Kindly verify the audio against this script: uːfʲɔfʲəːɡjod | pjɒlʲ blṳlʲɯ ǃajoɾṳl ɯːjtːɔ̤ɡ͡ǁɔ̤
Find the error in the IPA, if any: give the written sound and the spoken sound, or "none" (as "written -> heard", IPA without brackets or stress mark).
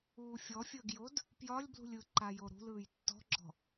none